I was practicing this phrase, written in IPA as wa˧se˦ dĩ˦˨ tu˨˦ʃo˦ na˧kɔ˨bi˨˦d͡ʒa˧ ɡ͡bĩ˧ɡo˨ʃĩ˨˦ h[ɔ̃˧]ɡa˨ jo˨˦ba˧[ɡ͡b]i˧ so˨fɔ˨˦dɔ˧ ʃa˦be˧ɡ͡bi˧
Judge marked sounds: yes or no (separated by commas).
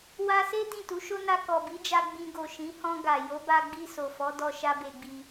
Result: yes, yes